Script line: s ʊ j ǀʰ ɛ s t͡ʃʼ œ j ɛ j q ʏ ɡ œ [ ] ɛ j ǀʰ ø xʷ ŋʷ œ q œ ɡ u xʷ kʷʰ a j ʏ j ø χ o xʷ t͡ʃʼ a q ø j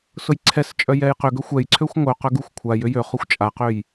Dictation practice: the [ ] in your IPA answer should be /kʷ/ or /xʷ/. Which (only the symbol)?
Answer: xʷ